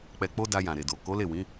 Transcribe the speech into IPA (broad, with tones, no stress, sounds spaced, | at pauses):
k͡p ɛ˨ k͡p o˧ d a˧ j ã˨ ɾ e˨ d o˨ k o˨˦ l e˦˨ w ĩ˨˦